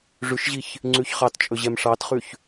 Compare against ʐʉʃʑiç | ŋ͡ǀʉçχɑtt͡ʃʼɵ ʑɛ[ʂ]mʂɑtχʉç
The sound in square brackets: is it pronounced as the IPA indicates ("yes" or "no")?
no